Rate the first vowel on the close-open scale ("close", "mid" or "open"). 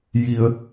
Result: close